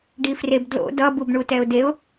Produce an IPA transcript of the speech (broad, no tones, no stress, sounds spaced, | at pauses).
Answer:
ɖ i f r e b d l o̰ d ʌ b u b ɳ u t ɛ ʊ̯ d e ʊ̯